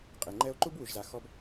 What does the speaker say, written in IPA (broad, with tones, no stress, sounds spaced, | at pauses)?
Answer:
qʼ e˨ ŋ͡ǃ ɛ˦ o̯ ǃ u˦ b w u˨ ʒ z a˨ x ɔ˦ b